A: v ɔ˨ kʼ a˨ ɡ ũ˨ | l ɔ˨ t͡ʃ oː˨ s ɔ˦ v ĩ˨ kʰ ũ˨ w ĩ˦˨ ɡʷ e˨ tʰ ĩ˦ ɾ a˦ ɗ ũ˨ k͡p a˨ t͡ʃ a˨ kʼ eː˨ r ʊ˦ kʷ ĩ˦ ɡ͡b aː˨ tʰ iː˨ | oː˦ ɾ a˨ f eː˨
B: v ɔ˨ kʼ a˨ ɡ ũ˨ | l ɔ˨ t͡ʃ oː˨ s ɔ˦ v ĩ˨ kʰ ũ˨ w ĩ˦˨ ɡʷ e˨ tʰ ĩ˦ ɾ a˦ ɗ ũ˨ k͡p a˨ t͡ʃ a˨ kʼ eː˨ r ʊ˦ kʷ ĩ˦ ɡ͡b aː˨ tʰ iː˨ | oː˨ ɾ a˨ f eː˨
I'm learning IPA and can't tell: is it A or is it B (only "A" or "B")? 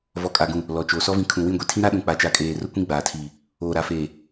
B